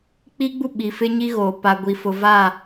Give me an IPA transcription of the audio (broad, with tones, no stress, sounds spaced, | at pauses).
k͡p i˦ ɡ͡b u˦ ɓ i˨ f ɪ˦ ɲ i˦ ɣ oː˨ p a˨ ɡʷ i˨ f ʊ˨ v a˦˨